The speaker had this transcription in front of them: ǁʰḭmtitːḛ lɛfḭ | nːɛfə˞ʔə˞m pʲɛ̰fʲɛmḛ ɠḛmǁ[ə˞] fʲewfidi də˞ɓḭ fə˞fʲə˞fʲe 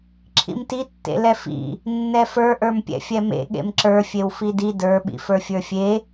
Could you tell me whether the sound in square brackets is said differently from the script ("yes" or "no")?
no